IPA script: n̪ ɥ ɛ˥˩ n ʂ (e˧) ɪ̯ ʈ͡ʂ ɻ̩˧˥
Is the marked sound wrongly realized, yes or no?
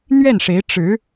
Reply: yes